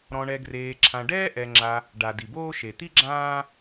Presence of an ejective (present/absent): absent